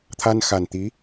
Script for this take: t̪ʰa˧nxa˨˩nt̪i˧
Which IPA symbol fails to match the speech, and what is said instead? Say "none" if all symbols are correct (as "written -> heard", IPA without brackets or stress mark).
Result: i˧ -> i˧˥